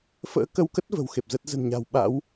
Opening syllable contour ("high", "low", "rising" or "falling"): rising